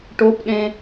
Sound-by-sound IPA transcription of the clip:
ʈopɗẽ

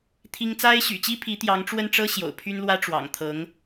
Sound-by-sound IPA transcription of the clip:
t̪ʰi˥ŋ t͡sa˥ɪ̯ɕy̰˨˩t͡ɕi˥pʰi˧˥ t̪jɑ˧˥ŋʈ͡ʂwə˥˩nʈ͡ʂɤ˥ ɕjo̰˨˩ʊ̯pʰy˥nlwä˥ ʈ͡ʂwɑ̰˨˩ŋt̪ʰɤ˧˥ŋ

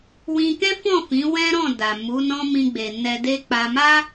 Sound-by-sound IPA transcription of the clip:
wĩ˧kɛ̃˦fɔ̃˦˨ fĩ˨˦ wɛ̃˦ɾɔ̃˦˨da˨ mu˨˦nɔ̃˦ mĩ˧ɡ͡be˨ nɛ˧de˦ k͡pa˧ma˦

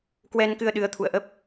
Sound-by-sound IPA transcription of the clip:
kwɛ˧nkɨ˧ə̯ ɗɨ˨˦ə̯t̪ʰṵ˧˨ə̯ʔə˦˥p̚

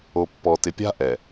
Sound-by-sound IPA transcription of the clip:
o˨pːɔ˨tɪ˨pʲa̤˦ ʔɛ˨

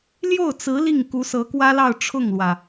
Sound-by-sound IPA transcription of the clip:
ljo˥˩ʊ̯t͡sɹ̩˧˥ li˥˩ŋ ku˧˥sɤ˧˥kwä˥lɑ˥˧ʊ̯ ʈ͡ʂʰʊ˥˩ŋlwä˩

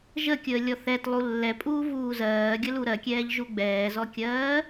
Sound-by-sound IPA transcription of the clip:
ʒəkʲəː lʲɔθɛtlˠu lːɛpʼuː vuːzɜːɡʲə luɾɜkʲɛːʎ ʒuɡ͡bɛːzɔkʲɜː

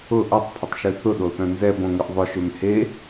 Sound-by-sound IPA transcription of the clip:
ʊ ʔɔtˤpʰɪtˤʃø θʊɗoθœ̃ nzɛbõŋʏʔ ðˤʊʃøm he

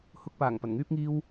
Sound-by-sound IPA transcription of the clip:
hʊ˧k̚paː˨˩ŋ pɐ˨˩nŋyː˥p̚ŋiː˥w

